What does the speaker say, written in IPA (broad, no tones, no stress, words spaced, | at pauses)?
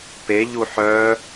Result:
peʎu ħœ